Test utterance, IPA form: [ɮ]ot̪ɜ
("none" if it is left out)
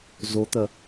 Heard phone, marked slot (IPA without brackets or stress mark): z